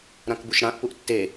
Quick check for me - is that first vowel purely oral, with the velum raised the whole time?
no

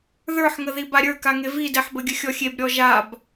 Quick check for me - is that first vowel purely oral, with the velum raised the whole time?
yes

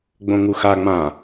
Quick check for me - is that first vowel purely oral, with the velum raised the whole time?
no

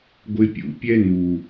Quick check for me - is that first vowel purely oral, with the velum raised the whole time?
yes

